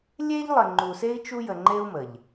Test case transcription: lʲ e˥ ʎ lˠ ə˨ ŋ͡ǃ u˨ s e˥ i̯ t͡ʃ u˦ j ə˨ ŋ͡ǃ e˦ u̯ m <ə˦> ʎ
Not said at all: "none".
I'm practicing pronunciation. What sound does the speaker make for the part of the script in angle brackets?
ə˩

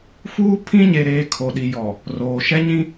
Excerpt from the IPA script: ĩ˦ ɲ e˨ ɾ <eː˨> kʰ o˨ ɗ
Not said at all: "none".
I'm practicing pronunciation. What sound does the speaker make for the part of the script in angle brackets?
eː˨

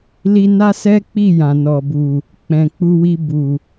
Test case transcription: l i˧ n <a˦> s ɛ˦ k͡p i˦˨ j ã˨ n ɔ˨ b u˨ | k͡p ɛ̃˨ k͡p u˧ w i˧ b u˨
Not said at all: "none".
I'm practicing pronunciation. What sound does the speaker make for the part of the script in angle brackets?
a˦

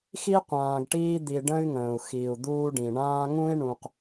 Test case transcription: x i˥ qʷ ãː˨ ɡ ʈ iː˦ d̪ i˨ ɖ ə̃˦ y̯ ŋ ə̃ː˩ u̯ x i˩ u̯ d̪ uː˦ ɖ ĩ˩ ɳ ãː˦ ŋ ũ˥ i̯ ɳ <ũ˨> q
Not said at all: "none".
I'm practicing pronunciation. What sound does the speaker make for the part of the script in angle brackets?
ũ˨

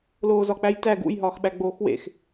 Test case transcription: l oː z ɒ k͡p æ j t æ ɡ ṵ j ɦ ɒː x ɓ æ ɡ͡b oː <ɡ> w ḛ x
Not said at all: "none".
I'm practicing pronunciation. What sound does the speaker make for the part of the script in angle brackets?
x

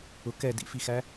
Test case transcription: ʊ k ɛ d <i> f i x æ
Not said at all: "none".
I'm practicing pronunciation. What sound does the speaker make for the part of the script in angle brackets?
ḭ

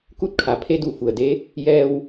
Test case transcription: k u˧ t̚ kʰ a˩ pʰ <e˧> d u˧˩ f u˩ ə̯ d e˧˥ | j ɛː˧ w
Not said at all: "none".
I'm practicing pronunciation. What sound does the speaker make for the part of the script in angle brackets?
e˧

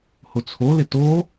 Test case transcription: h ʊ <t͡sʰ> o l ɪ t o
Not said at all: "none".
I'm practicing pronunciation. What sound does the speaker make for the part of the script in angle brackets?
t͡sʰ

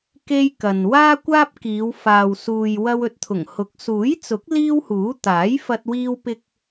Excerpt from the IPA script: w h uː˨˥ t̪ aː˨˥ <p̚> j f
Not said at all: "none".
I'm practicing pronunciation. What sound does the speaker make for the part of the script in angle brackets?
none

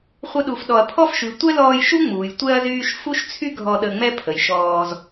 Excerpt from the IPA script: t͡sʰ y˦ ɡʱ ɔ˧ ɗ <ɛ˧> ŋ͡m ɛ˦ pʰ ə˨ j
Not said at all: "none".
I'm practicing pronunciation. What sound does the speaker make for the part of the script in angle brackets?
ə˧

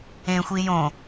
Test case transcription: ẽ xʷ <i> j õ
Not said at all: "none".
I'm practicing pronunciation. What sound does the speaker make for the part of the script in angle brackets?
i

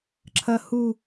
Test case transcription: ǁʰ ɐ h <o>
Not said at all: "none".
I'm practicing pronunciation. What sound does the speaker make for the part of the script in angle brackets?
u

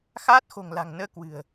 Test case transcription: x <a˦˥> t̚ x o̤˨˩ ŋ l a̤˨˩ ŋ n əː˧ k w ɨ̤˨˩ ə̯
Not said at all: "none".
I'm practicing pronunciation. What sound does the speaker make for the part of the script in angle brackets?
aː˦˥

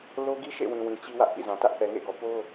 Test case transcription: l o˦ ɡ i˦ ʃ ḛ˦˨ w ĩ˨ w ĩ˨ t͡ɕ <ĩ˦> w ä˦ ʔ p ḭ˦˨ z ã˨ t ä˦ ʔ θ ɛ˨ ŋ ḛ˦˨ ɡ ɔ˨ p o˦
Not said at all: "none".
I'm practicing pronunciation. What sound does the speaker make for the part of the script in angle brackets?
i˦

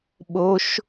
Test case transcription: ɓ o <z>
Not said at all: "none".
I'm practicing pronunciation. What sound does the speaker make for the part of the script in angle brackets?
ʃ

